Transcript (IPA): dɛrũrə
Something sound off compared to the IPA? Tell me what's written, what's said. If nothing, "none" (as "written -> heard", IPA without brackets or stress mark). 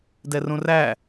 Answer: ə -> æ